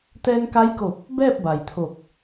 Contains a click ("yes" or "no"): no